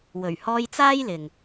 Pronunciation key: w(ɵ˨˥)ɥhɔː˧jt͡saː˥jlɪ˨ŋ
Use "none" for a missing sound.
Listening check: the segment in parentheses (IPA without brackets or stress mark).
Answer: ɵ˨˩